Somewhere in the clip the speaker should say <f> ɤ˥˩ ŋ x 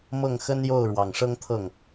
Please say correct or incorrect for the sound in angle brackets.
incorrect: m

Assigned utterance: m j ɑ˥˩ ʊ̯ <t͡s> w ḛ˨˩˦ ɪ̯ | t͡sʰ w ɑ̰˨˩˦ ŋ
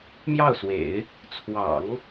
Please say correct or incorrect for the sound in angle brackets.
incorrect: s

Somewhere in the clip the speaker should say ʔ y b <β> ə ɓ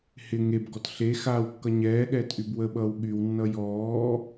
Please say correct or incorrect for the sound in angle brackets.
incorrect: w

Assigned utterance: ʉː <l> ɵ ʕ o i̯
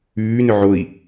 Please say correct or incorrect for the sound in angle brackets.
incorrect: n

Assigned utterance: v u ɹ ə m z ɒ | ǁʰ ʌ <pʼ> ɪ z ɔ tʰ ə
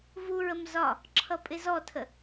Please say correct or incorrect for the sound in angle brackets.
correct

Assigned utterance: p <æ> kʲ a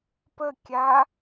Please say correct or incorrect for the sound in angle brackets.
incorrect: ə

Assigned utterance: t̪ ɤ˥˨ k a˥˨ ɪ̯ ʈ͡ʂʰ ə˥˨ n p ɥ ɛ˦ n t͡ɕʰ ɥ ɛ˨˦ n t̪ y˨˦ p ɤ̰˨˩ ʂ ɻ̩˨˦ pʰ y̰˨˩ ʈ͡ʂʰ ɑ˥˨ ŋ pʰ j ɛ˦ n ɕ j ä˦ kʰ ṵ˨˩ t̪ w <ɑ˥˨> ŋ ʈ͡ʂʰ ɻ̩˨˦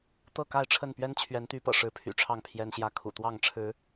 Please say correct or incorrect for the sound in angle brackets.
correct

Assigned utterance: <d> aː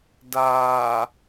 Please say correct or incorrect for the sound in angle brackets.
correct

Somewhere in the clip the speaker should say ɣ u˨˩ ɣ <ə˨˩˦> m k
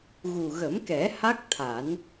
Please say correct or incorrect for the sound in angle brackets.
correct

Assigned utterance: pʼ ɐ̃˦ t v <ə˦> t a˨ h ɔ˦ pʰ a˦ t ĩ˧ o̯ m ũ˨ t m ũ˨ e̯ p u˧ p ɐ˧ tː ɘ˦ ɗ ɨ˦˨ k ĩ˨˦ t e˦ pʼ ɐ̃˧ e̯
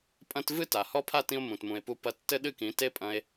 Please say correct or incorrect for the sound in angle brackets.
incorrect: ɨ˦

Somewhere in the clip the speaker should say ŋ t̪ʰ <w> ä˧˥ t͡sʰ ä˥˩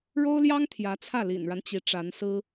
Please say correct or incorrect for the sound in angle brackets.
incorrect: j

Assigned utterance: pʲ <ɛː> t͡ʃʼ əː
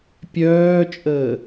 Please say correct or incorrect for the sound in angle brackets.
incorrect: œː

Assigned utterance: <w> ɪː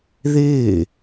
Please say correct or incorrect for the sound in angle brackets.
incorrect: ð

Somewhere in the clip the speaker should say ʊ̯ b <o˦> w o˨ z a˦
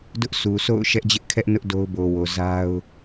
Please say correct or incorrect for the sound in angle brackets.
incorrect: o˨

